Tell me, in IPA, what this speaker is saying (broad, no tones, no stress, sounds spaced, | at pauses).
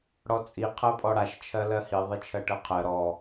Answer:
ɽ ɔ t͡sʼ i qʰ ɜ pʼ ɔ ɽ a ʃ t͡ʃʰ ɜ l ɜ h i ðˤ i t͡ʃʰ ɜ ʈ ɜ qʰ ɜ ɾ ɔ